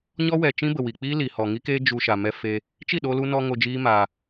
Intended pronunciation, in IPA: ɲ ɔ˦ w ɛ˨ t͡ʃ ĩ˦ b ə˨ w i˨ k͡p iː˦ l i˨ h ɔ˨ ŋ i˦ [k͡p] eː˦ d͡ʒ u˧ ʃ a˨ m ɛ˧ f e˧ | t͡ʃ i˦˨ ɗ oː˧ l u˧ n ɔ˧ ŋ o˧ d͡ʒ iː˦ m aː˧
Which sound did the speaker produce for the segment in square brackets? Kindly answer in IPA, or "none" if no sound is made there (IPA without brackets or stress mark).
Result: k